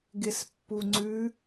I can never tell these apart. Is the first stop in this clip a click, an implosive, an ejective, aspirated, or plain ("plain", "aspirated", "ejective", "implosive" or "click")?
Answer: plain